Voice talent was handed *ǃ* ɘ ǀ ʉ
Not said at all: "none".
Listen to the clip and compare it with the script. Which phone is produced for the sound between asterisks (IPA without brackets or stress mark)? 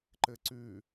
ǃ